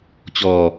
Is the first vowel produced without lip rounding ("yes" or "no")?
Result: no